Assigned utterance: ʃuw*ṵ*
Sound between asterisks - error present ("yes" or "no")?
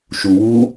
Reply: yes